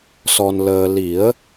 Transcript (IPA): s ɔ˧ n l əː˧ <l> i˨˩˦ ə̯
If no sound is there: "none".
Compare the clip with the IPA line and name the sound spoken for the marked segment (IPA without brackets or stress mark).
l